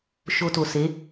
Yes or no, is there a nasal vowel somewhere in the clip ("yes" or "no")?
no